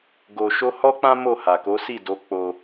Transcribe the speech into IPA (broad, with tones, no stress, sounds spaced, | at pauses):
ɡ o˧ ʃ o˦ h ɔ˦ k͡p ã˦ m o˦˨ h a˨ k o˨˦ s i˦˨ d o˨˦ k͡p o˧